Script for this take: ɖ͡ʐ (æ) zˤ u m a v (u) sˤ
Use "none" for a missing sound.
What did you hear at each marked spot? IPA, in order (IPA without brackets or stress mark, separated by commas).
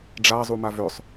a, ʏ